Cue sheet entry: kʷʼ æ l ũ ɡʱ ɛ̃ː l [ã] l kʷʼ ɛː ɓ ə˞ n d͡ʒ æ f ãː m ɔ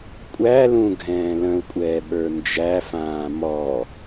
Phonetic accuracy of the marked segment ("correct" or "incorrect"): incorrect